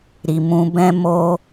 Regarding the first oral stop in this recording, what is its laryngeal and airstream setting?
plain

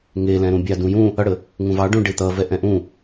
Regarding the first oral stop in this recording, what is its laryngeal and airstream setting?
plain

